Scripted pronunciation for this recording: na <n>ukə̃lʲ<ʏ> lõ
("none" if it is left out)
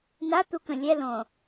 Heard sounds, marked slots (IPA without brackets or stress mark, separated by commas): t̪, ɛ